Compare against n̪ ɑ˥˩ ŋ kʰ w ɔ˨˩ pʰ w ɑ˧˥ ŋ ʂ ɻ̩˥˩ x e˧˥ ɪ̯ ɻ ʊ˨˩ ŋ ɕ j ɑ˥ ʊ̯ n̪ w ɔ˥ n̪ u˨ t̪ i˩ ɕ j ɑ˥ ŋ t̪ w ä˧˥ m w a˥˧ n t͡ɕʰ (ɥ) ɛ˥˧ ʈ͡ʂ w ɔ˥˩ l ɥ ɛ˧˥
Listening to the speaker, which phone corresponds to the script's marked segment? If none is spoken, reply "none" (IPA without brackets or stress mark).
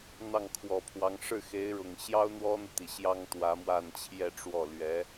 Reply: j